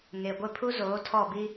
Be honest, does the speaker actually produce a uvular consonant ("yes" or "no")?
no